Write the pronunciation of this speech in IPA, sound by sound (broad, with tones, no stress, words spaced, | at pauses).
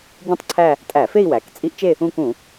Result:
ɟũ˥˧tˤǀʰæ˥˧ | tʼæ˧˩˧fe˥˧i̯ wæ˩˧k t͡sʼi˦˥ʔt͡ʃe˥˧ | ũ˥˧kũ˧˩˧